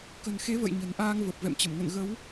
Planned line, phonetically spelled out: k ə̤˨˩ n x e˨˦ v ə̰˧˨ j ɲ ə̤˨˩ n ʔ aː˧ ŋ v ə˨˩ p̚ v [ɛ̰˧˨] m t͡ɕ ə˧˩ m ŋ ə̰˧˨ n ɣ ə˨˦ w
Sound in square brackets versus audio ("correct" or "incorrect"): correct